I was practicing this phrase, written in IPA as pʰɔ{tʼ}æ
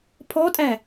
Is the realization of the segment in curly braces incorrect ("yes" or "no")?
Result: no